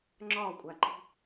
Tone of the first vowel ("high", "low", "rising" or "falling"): falling